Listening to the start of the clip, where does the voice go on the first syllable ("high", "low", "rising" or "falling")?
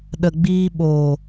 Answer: low